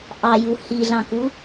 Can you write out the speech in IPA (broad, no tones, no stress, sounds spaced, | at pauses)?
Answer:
ʔ ɑ j u h i ɮ ɑ̃ k u